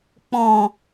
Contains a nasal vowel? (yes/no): yes